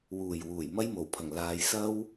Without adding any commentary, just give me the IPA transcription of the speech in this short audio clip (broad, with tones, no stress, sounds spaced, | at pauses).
w uː˨˩ j w uː˨˩ j m ɐ˥ j m o˨˩ w pʰ ɐ˨˩ ŋ l aː˨ j s ɐ˥ w